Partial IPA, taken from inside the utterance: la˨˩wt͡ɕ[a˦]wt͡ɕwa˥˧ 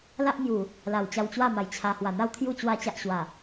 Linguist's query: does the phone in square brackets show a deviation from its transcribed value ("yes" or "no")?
yes